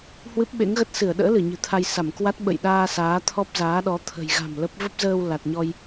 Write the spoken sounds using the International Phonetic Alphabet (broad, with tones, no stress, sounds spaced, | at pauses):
h w ɨ˦˥ p̚ ɓ ḛ˧˥ ŋ ɣ ə˦˥ t̚ s ɨ˧˩ ə̯ ɗ ə̰ː˧˥ l ɨ˧˩ ɲ ɨ̤˨˩ t̪ʰ a˧ j s a˧˩ m k w a˦˥ t̚ ɓ ə̰˧˨ j ɗ aː˧ s aː˨˦ t̪ʰ ɔ˦˥ p̚ z aː˨˦ ɗ ɔ˨˦ t̪ʰ ə̤˨˩ j ɣ a̤˨˩ m l ə˦˥ p̚ v ə˦˥ p̚ z əː˧ w l a˨˩ t̚ ɲ ɔ˧ j